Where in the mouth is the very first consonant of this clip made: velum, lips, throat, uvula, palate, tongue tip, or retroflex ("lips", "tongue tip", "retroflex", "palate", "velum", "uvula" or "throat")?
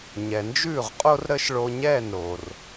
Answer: palate